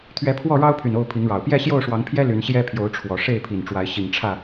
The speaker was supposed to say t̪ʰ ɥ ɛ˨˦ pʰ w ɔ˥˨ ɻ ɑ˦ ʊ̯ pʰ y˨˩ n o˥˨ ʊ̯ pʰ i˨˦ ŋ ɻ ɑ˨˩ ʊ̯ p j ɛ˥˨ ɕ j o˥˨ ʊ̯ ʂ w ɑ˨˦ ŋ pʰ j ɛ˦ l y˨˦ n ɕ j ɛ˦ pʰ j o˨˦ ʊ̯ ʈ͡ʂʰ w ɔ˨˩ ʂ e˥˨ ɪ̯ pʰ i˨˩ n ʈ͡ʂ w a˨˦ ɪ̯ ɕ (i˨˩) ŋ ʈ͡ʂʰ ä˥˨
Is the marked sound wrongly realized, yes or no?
no